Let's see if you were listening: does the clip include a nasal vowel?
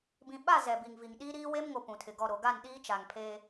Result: yes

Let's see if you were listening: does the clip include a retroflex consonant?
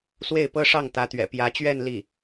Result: yes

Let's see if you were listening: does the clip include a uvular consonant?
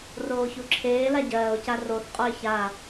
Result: yes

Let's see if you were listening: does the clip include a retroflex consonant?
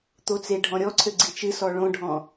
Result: yes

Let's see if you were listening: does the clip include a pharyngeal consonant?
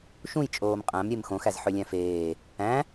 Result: yes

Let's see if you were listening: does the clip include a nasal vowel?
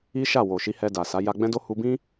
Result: yes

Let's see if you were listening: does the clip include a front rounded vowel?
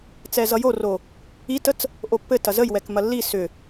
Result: yes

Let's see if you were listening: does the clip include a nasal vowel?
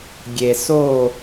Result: no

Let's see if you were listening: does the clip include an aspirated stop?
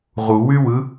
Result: no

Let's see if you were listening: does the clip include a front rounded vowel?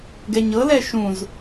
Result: no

